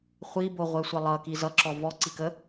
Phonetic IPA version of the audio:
χʷ i b o ʁʷ ɛ sʷ ʌ lˠ ʌ k i z ʌ ǁ ɔ v ɔ ǀ i k ə

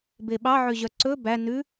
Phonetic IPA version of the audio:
b e ɓ ɑ ʕ ø ʑ œ ǀ ɵ b æ n ʉ

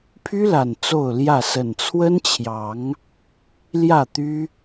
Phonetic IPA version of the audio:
pʰ y˦ l a˨˩ n t͡s o˥˨ ʊ̯ l j ä˥˨ s ə˨˩ n t͡sʰ w ə˦ n t͡ɕʰ j ɑ˨˦ ŋ | l j ä˥˨ t̪ y˦

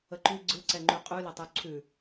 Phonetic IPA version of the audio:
ə ǃ ʉ ɡ͡ǀ ɯ ǀ ɛ ŋ͡ǃ ʉ qʼ ʉ l ɐ tˤ ʉ ǀʰ ʉ

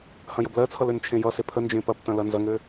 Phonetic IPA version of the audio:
h ɐ̃ j ə b l ɜ t͡sʰ ʌ l ø n t͡ʃʰ ẽ j ʌ s e pʰ ə n d͡ʒ ẽ p ɐ p t ɐ̃ l ɐ n z ɐ ŋ ø

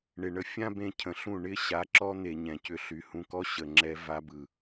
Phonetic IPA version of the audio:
ɳ ɪ˧ ɳ ə˧ fʲ ã˦ b ẽ˧ cʰ ə̃˨ ɬ ũ˦˨ ɳ ɪ˦ ɕ a˨˦ ǁ ɔ˦ n̪ e˨ ɲ ɛ̃˨ c ʏ˧ ɬ y˨ h ũ˧ k ɔ˦ ɕ ə˨ ŋ͡ǁ ɛ˧ v a˧ b ɯ˨

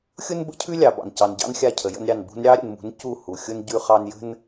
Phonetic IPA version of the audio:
xʲ ʊ˦ n b ə̰˦ cʰ ʉ˦ lʲ ɑ˨ b ɑ̰˨ n c ɑ˨ n ɟ ɑ̰˦ n xʲ a˦˨ cʰ ə˨ j ə̰˦ n ɾʲ ɑ˦˨ n b ṳ˦ n ɾʲ ɑ˦ ɾʲ ə̰˨ n m ṳ˨˦ n c u˦˨ h u˨ xʲ ʊ˦ n ɟ ʉ˦ χ ɑ˦ n j ə̤˦ n

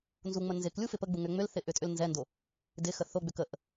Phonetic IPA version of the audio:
n z u ŋ͡m ə n z ɪ k lʲ u f ɪ p ə ɡ͡b u ŋ ʏ ŋ͡m ʏ l θ ɪ ʔ ʏ tʼ ʏ l n z ɛ n d o | d ɪ x ə θ o ɡ͡b ʏ k ə ʔ

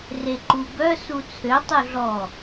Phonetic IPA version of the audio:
r e ǃ u b œ s u t͡sʰ ø tˤ u ɮ ɔ

